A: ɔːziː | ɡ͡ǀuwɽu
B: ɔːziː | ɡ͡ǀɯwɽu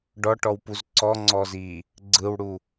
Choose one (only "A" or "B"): B